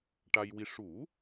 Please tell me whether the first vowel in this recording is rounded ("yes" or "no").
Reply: no